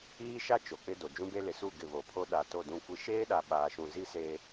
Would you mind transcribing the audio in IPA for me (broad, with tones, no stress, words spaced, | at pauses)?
iː˦ʃa˦ t͡ʃo˨k͡pɪ˦do˨ d͡ʒũ˦be˦lɪ˨ su˦˨ ɡɪ˦˨ βo˨pʰo˦ ɗa˨to˦˨dũ˦˨kʷi˦ ʃeː˦ɗa˨ ɓaː˨ʃũ˨zi˦ seː˦